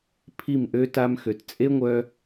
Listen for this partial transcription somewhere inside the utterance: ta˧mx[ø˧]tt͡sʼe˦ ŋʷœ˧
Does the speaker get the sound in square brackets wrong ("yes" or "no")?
yes